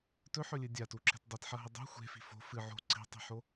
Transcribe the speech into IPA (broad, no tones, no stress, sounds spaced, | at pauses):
t ɵ ħ ɵ lʲ ɨ dʲ a t u ǁ e̤ t dˤ i t ħ ɐ ɦ ɨ dˤ e̤ xʷ e̤ f i̤ f o̤ f ɨ ʕ o̤ ǀ i̤ tˤ i̤ ħ o